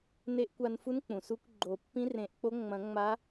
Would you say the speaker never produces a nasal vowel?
no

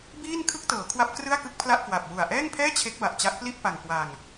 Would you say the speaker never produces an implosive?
yes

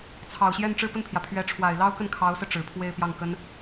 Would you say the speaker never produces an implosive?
yes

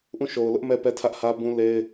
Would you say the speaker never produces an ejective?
yes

